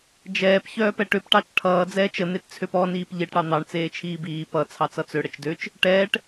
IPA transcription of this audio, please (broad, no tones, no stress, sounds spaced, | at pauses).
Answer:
d͡ʒ ɛː p ç œː p ɛ ʈ ø p ʈ ɑ t͡ʃ ʈʰ ʌː d͡z ɛː t͡ʃ ə n̪ e t t͡sʰ ø p ɔ n iː p ʎ e ʈ ɽ ɑ n̪ ɑ ɳ t͡s eː t͡ʃʰ iː b iː p ʌ t͡sʰ ɑ t͡s ʌ t͡s ø ɽ ə t͡ʃ d ø t͡ʃ | ʈ ɛː ʈ